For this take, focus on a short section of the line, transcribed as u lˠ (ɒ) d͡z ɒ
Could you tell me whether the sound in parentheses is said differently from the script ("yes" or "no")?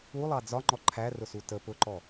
yes